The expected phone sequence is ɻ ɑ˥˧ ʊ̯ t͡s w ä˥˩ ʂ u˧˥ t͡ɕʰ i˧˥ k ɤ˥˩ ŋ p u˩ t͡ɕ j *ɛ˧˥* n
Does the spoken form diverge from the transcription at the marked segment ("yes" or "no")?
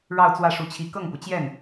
yes